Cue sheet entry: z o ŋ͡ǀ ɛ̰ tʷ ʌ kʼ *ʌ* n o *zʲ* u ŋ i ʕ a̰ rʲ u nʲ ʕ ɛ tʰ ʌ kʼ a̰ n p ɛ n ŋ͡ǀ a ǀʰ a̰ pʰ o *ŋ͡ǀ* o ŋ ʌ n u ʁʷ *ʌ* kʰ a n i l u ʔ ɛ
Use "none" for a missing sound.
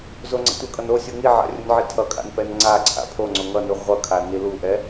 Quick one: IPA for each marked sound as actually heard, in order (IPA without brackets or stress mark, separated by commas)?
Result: ʌ, sʲ, ŋ͡ǀ, ʌ